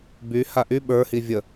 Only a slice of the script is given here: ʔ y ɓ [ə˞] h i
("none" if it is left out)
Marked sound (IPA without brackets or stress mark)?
ə˞